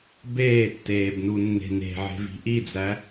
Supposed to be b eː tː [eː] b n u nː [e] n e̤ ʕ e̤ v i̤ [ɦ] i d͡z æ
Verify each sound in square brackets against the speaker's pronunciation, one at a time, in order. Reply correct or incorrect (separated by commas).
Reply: correct, incorrect, incorrect